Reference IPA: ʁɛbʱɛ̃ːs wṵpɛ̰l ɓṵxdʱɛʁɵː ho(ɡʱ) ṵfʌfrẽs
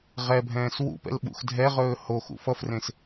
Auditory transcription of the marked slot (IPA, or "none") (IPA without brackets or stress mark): x